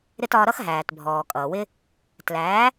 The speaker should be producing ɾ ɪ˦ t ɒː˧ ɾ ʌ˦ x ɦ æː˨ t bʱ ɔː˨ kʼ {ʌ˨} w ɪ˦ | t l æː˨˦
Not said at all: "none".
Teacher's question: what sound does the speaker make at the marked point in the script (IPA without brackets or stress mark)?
ʌː˨